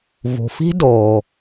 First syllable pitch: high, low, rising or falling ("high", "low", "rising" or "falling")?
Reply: low